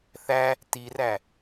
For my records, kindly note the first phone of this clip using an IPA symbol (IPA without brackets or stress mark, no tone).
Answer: θ